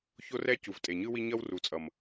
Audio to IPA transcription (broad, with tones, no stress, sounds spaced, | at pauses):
ç o˦ r ɛ˦ c u˨ v tʼ e˨ ɲ ɯ˦ w i˦ ɲ ʌ˦ w r u˨ t͡sʼ ʌ˨ m